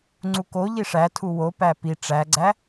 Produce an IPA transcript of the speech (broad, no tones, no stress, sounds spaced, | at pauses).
ŋ͡ǀ u k o ʎ i ʂ æ tʰ u w o p æ p i ʈ͡ʂ æ ɡ͡ǀ æ